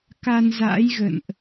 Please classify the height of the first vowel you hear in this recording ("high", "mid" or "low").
low